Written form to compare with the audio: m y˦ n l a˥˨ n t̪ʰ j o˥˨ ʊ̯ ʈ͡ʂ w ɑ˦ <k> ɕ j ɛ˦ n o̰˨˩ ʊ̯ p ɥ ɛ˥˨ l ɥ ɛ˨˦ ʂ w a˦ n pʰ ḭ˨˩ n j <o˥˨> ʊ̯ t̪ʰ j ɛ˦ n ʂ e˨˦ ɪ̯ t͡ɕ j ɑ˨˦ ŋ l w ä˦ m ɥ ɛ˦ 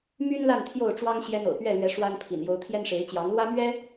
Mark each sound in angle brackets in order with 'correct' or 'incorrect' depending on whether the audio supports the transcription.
incorrect: ŋ, incorrect: o˨˦

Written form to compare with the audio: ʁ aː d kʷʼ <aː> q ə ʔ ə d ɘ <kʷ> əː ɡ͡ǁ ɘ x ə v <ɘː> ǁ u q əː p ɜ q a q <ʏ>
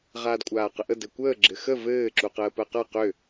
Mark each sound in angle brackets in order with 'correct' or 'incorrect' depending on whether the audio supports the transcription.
correct, correct, correct, correct

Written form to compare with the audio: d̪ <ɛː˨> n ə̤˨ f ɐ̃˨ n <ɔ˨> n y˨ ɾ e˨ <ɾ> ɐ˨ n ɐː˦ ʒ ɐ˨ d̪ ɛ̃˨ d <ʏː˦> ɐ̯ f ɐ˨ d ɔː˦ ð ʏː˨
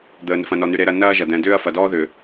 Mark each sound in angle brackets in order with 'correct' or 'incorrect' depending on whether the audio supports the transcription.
incorrect: əː˨, correct, correct, correct

